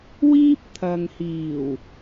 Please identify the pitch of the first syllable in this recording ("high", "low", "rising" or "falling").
high